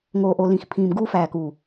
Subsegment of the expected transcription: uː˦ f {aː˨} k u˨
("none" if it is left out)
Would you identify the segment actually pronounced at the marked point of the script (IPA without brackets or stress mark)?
æː˨